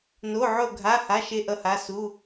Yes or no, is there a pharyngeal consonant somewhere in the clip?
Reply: yes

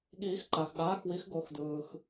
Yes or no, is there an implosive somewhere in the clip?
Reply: yes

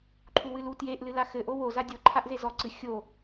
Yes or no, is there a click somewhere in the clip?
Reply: yes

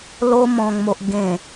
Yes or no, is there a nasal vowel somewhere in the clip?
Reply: yes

